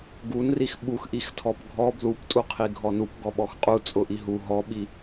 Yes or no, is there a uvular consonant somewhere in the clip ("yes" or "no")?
yes